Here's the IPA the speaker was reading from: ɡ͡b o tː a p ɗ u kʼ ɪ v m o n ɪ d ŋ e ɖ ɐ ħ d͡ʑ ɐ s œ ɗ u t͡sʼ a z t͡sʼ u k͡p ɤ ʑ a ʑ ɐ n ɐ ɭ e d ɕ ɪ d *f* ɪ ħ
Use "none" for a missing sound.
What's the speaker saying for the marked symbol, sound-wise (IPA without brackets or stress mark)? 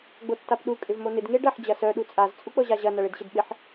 ɓ